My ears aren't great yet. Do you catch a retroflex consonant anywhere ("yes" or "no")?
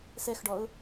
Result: yes